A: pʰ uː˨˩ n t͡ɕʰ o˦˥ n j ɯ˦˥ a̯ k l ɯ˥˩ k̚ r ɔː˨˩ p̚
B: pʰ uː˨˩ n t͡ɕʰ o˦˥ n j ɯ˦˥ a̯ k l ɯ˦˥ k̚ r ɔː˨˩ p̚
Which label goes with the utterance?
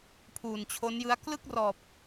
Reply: A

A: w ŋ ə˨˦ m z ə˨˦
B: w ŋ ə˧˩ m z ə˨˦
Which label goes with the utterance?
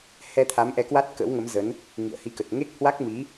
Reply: A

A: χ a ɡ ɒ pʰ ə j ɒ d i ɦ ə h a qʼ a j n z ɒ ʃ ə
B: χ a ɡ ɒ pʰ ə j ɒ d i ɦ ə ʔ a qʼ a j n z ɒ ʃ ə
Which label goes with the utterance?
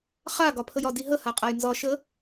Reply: A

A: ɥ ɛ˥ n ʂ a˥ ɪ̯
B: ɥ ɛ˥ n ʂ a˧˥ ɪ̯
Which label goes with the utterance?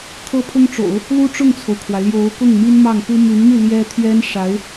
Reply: B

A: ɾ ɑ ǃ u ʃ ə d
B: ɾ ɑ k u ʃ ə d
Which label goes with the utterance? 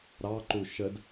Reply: A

